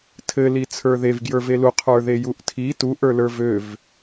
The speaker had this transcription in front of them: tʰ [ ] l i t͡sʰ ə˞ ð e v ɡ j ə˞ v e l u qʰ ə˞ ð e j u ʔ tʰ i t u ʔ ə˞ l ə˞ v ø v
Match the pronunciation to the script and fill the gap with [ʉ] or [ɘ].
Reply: ɘ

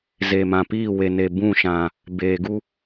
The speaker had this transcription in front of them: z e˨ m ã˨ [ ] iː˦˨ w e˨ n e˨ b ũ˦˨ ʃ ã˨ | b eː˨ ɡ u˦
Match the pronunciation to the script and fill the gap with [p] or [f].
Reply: p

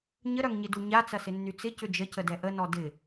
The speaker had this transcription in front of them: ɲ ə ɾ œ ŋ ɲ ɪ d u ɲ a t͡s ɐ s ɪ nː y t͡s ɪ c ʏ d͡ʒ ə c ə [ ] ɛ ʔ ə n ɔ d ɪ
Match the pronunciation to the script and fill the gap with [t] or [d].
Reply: d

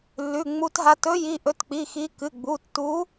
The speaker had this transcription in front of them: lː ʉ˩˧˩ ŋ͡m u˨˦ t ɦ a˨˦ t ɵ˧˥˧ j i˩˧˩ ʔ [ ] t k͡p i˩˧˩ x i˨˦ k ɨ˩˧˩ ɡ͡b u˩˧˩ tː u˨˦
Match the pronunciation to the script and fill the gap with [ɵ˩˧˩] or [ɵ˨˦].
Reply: ɵ˨˦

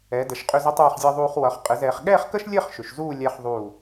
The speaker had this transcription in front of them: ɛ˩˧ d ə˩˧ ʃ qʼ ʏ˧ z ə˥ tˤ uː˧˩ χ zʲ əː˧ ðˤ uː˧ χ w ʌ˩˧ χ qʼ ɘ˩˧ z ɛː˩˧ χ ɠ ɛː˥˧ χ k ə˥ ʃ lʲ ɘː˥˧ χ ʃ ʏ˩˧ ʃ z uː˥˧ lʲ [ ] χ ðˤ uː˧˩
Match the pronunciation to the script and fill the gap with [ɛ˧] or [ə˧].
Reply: ɛ˧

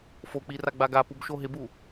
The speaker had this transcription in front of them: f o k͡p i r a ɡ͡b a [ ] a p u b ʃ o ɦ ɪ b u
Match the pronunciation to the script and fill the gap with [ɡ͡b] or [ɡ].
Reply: ɡ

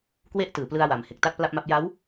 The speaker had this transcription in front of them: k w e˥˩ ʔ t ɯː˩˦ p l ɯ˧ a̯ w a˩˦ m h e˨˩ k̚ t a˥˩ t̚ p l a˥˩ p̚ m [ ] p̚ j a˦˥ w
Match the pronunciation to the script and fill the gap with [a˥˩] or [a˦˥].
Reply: a˦˥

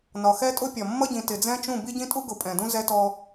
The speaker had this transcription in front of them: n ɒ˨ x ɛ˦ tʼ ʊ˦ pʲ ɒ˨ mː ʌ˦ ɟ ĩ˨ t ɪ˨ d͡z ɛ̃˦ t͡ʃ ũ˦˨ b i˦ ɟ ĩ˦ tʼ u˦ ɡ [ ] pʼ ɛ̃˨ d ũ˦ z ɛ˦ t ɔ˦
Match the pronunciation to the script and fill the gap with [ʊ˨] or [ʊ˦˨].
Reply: ʊ˨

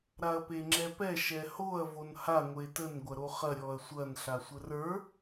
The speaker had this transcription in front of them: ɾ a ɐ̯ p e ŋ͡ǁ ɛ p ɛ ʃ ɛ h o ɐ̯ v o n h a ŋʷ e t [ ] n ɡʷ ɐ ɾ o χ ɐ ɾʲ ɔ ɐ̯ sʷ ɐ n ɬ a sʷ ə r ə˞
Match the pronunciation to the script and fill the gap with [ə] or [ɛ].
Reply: ə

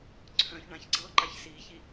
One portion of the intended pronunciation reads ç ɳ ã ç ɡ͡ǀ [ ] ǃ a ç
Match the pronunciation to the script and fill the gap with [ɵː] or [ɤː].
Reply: ɤː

